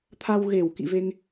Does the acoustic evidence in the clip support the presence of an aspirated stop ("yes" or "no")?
yes